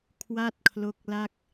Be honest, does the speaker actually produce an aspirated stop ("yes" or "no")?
yes